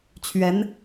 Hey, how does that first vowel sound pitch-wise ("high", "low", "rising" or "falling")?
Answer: rising